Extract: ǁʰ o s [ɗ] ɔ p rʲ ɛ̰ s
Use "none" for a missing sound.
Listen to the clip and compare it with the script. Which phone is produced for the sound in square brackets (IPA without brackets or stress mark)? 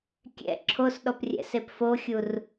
ɗ